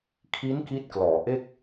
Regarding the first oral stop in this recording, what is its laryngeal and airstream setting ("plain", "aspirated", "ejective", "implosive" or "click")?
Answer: aspirated